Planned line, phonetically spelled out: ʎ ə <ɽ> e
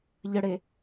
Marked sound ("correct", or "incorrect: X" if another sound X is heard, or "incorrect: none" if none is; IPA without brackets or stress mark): correct